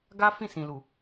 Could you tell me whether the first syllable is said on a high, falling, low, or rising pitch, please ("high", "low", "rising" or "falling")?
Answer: high